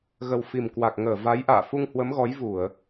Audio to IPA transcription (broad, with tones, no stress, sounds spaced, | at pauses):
ɣ ə˨˩ w f i˨˩ m k w a˨˩ k̚ ŋ əː˧˩ v a˨˦ j ʔ a̰ː˧˨ f u˧ ŋ h w ə˨˦ m ɣ ɔ˨˦ j v u˧˩˨ ə̯